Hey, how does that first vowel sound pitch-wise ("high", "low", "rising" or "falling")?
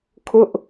high